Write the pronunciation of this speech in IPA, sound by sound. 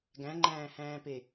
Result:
ɡ æ̃ ŋ͡ǃ æ̃ː h æ̃ː p e

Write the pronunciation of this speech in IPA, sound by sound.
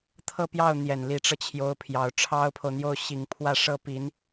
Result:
t̪ʰ ɤ˥˧ p j ɑ˥˩ ʊ̯ n̪ j ɛ˨˩ n l i˧˥ ʈ͡ʂ ɤ˧ t͡ɕʰ j o˧˥ ʊ̯ pʰ j ɑ˨˩ ʊ̯ ʈ͡ʂʰ ɑ˥ ʊ̯ pʰ o˨ ʊ̯ n̪ j o˥˩ ʊ̯ ɕ i˨˩ ŋ pʰ w ä˥˧ ʂ ɤ˥˩ p i˧˥ n

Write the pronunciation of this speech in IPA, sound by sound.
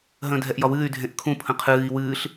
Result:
ɦ ə̃ː dʱ ɛ ʔ j ɒ w ɨː y̯ dʱ ẽ ʔ kʰ ũ pʰ ə̃ qʰ ɨː i̯ w ɨː ɬ

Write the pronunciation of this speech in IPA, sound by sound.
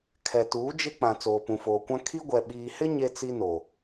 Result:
kʰ ɛ˨ t uː˨˦ d͡ʒ ɪ˦ k͡p ã˨ t͡s oː˨ p ũ˨ f oː˨ kʷ ã˦ kʰ i˦ ɡʷ ɛ˨ ɓ iː˨ h ɪ˦ ɲ e˦ t͡s i˦ n o˨

